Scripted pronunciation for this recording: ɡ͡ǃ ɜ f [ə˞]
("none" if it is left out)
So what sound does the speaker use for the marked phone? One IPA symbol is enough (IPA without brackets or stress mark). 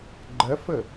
ə